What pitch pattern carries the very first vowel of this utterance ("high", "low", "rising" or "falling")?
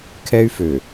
high